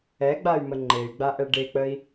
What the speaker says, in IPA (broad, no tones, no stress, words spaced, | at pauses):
ɛɡ͡bay̯mə ŋ͡ǃey̯ɡ͡baʔɛ ɖek͡pəi̯